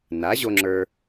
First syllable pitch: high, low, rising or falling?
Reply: rising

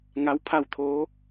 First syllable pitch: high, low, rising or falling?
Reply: rising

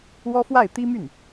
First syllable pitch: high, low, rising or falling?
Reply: high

